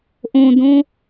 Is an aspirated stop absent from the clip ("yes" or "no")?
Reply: yes